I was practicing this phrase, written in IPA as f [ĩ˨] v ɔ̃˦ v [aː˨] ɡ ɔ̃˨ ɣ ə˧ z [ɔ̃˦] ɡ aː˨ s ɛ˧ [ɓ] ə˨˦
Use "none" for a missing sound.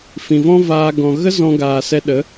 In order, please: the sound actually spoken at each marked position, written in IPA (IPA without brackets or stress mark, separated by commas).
ĩ˨, aː˧, ɔ̃˨, ɗ